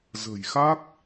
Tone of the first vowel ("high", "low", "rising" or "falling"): low